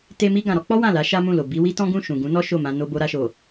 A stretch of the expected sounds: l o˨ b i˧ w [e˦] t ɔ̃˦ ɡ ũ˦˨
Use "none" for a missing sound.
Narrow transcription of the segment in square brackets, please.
i˦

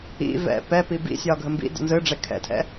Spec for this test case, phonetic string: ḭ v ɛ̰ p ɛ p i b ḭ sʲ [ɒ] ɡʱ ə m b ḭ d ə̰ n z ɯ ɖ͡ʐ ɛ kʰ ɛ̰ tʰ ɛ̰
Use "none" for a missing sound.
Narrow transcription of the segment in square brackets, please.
ɒ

